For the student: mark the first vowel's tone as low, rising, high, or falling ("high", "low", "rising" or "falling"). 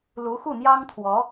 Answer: rising